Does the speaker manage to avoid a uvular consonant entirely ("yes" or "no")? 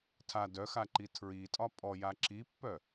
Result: yes